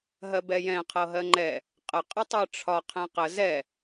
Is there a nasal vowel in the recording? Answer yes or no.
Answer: yes